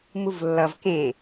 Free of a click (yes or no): yes